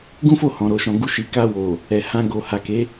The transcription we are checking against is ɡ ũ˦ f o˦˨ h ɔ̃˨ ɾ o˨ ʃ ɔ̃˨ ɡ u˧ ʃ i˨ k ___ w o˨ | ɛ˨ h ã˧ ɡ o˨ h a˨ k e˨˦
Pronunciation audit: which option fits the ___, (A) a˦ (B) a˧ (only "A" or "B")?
B